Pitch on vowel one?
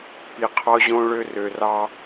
low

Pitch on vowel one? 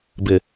low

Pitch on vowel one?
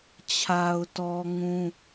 low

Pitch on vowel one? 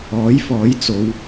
rising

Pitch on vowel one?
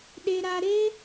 low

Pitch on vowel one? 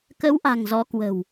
rising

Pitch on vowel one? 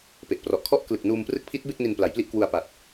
low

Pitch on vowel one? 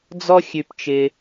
high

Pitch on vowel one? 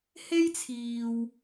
high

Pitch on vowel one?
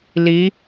rising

